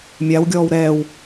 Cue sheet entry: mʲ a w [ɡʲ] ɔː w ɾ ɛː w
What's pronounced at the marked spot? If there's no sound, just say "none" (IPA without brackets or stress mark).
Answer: ɡʲ